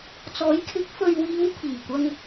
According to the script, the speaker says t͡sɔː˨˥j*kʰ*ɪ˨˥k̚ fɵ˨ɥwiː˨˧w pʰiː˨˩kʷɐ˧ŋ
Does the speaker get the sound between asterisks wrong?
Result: no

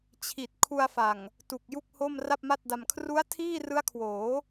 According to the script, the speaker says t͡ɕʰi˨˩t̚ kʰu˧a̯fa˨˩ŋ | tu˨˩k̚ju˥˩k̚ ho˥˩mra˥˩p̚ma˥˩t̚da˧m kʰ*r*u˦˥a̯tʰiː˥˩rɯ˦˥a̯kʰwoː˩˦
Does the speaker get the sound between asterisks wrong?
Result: no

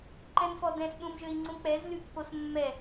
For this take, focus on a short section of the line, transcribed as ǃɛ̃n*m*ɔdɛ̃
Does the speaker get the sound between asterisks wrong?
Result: yes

